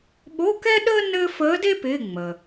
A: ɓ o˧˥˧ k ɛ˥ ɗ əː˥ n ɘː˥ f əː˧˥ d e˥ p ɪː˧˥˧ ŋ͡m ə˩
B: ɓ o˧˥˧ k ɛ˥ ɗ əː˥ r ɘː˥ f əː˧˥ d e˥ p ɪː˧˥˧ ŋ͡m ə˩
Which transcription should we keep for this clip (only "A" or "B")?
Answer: A